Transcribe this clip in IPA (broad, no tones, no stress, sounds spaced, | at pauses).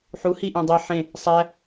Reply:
ħ u h i ʔ ẽ dˤ e ħ ẽ | sˤ æ